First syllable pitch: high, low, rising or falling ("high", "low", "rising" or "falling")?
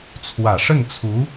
low